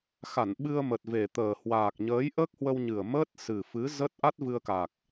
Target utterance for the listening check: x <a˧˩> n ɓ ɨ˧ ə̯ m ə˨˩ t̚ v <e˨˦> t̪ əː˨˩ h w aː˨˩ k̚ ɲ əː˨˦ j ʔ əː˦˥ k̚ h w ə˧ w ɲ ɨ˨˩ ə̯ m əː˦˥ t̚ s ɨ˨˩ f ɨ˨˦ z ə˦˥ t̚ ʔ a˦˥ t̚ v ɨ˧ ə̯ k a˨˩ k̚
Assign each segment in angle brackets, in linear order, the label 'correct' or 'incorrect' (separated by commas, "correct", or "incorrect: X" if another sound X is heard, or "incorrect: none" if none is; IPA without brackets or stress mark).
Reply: correct, incorrect: e˨˩